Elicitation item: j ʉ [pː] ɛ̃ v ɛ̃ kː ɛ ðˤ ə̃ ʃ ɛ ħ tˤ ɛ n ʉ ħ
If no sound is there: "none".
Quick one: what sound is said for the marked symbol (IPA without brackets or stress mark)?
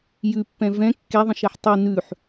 pː